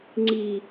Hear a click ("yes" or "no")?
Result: yes